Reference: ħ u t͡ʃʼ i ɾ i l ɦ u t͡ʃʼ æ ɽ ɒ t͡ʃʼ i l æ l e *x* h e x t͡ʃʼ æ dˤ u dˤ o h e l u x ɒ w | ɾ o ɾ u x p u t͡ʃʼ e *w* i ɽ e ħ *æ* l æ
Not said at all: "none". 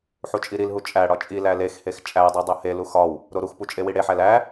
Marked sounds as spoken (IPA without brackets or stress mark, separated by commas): x, w, æ